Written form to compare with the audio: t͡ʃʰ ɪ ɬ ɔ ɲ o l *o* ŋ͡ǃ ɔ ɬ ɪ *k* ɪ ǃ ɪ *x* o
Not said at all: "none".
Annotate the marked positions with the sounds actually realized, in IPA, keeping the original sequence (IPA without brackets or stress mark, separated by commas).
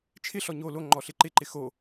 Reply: o, ǃ, x